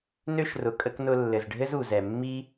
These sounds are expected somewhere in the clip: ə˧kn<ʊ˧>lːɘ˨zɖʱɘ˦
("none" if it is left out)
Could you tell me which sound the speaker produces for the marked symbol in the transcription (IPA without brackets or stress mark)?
ʊ˧